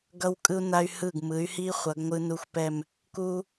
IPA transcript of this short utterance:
ɡʌ˧wkʼɯ˧u̯na˧y̯ hɯ˧˩ɡ mɯ˩˧y̯hi˧ χʷʌ˩˧ɡŋʷɯ˧nu˧˩xʷpɛ˧˩m | ku˧

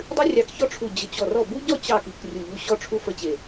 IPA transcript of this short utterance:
dˤɨ˦rʲɑ˧˩kçɔ˦ ʈ͡ʂʰu˧˩d͡ʑə˧˩t͡ɕɔ˧˩rɔ˥˩ bu˦ɟɔ˥˩ t͡ɕɑ˥˩ki˧˩k rʲu˧˩ʎu˦ ɕɔ˦ʈ͡ʂʰu˦ fə˦t͡ɕe˧˩

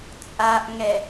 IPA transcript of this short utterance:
t͡sʼaʔŋɛ

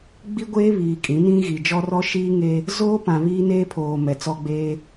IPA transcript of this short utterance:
ɡ͡bi˦ɡʷeː˦ βiː˨ kʼĩ˨˦nĩ˦ ɣi˨d͡ʒɔ˦rɔ˦ ʃiː˦ŋe˦ | zoː˦pã˨ βiː˦neː˦pʰoː˨ mɛ˨t͡sɔ˦ɡ͡beː˦

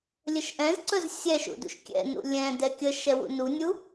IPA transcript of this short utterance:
lʲəʃʔɛ̃zǀɵz sʲɛʃṵdṵʃ kʲɛ̰nṵ lʲɛ̃ dɛkʲə ʃɛwṵnunʲu

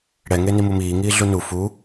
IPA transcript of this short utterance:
ɽɛ ŋenimumiː ŋiːɮunu fu

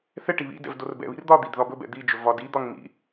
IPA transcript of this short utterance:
θɛ ʈiβḭdɛ̰v dorbɛ̰βḭr d̪ɒd̪id ðɒbɵbɛ̰ d̪id͡ʒɵ vɒdid̪ɒŋ mḭ

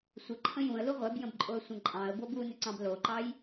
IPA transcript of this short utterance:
sʷə ǃʰə̃jũə̯lu ʁʷɛbjə̃bǃʼoə̯sʷə̃ ǃʼɑ̃ə̯ bobunʏǀɑ̃b loǃɑj

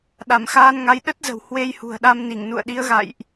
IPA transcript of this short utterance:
ɗa˧˩mxaː˧nŋa˨˦j ɗə˦˥t̚zə̤˨˩w hwe˧jhṳ˨˩ə̯ɗa˧mni˧˩ŋ nṵ˧˨ə̯ɗi˨˦ə̯ɣa̰˧˨jʔ

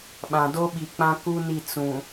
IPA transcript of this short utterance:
ɓã˨do˦ɓi˨k͡pã˦ ku˦ni˦˨ t͡sũ˨

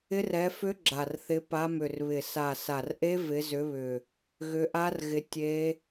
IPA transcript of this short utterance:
ɪ˦˥r ɛ˨˦fʏ˦˥ ɡ͡ǁa˨˩rθɪ˨˦ pa˨˦mʏ˨˩rβɪ˨˩ sa˨˩sa˨˩rʔe˦˥ vɪ˨˦zʏ˨˦βʏ˨˩ | ɣʏ˨˦ʔa˦˥rɣɪ˨˦ tʲe˦˥

